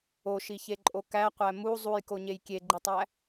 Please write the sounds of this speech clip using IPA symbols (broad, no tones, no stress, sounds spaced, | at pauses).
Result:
o ʃ i ç e ǃʼ o k æ qʷ æ m u zˤ u j k o ɲ e j kʲ e ɡ͡ǃ i tˤ æ